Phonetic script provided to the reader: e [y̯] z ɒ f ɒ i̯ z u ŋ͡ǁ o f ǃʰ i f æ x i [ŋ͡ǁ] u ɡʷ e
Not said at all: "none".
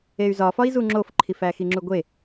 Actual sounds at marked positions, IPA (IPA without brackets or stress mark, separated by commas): y̯, ŋ͡ǁ